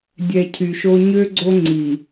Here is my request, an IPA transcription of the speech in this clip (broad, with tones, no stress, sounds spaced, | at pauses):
dʲ ɛ˨ cʰ y˨ ʃ o˦ ɲ ø˦ ɡ͡ǀ o˦ ŋ͡ǀ i˨